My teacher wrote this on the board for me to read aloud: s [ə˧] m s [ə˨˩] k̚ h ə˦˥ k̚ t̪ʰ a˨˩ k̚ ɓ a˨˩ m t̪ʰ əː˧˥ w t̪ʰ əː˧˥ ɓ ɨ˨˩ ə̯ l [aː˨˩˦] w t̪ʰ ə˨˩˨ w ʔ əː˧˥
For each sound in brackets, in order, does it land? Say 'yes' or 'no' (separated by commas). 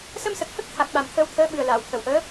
yes, yes, no